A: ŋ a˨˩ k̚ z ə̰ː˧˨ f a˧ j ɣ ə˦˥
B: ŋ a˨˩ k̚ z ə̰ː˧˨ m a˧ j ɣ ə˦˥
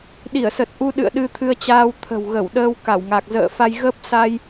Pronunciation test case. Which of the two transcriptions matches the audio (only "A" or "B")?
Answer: A